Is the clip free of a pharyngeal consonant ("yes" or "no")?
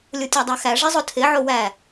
no